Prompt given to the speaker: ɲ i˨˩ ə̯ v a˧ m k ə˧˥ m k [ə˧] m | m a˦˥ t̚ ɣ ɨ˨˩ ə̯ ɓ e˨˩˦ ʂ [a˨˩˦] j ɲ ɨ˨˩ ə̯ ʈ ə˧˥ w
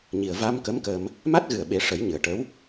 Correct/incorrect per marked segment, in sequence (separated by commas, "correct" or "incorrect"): correct, incorrect